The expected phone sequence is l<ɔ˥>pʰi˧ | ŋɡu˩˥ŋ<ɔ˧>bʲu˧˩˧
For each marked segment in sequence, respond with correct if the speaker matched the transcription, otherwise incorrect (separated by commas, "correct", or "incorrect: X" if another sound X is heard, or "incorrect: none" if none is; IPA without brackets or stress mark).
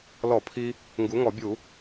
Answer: incorrect: ɔ˧˩˧, incorrect: ɔ˧˩˧